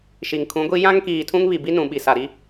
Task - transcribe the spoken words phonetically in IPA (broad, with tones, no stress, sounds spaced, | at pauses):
ʃ i˨ ŋ kʰ ũ˨˦ ɡʷ i˦ j ã˦ ŋ k iː˨ tʰ ũ˦ ŋ β i˨ b i˦ n ũ˨ ɓ i˨ s a˨ ɾ i˦